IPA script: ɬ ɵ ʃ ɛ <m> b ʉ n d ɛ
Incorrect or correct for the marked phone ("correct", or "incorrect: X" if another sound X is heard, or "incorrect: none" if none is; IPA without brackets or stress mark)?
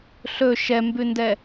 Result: correct